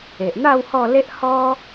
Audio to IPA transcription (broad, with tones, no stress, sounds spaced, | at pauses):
e˨ ʔ n̪ a˥˧ w h ɔ˥˧ l e˦ ʔ h ɔ˦